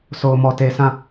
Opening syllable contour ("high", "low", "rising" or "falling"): low